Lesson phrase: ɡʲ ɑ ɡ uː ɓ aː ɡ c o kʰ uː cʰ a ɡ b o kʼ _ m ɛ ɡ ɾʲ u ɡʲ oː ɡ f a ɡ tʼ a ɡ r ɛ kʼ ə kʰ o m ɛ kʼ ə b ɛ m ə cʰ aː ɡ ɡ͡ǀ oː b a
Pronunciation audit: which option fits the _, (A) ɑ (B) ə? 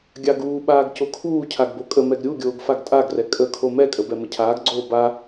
B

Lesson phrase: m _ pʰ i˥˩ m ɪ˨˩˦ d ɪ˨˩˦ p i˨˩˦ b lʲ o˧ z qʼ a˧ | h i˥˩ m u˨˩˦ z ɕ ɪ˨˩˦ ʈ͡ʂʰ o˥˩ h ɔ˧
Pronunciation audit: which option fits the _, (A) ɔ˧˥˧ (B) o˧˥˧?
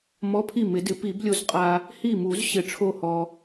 A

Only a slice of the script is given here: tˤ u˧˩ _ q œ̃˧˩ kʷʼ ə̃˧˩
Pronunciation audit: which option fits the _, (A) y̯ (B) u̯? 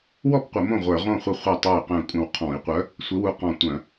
A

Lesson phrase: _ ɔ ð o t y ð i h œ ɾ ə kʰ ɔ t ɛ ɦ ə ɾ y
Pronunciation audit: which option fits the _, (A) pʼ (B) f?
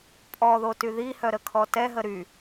A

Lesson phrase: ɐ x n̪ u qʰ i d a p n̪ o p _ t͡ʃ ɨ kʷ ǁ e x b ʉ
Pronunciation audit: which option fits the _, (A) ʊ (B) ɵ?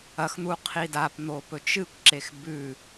B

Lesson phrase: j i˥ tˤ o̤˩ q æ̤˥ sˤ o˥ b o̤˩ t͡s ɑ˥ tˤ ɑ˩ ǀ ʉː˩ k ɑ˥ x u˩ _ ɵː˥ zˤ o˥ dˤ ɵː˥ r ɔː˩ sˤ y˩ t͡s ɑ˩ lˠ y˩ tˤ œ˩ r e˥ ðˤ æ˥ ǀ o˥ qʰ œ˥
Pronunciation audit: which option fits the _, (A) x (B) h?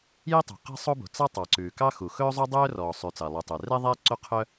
A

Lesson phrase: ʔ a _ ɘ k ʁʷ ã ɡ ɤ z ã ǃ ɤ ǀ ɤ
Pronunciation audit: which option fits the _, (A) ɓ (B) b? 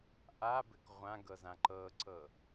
B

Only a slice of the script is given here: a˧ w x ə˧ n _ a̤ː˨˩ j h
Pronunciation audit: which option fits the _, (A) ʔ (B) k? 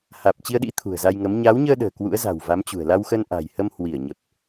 A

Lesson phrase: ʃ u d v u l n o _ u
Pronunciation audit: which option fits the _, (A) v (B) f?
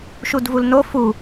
B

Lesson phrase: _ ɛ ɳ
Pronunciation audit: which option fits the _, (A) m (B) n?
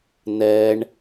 B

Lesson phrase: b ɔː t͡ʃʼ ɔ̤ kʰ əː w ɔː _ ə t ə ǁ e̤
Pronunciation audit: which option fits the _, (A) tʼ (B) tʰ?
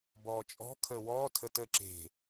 B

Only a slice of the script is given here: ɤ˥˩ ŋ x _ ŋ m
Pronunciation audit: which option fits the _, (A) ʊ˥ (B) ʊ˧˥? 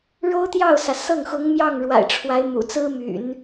B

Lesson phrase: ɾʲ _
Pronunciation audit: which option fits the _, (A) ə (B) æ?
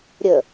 A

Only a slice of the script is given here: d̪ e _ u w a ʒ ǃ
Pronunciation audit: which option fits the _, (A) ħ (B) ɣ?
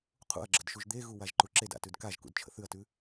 B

